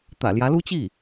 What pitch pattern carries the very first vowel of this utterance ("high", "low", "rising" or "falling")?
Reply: low